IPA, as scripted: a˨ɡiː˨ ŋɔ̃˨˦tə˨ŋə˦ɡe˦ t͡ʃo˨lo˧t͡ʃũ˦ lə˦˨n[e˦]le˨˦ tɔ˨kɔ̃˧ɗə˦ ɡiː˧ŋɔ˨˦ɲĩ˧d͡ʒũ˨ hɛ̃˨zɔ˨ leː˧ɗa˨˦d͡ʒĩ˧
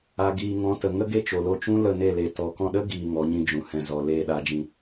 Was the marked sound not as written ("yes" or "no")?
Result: yes